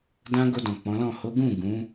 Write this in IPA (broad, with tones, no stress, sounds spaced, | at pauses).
d ã˧ ɡ o˧ d ɔ̃˨ k͡p ɔ̃˨˦ l ɔ̃˦˨ h o˨˦ ɡ ũ˦˨ ɡ ũ˨˦